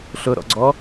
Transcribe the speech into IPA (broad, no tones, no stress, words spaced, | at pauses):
ɬʊɾɔ̰ɡ͡ǀɔ